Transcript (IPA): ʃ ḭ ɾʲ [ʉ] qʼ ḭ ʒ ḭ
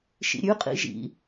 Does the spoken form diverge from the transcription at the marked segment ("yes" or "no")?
no